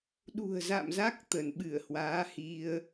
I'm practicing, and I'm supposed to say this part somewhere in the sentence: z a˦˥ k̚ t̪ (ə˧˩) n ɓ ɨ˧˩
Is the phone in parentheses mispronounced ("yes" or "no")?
no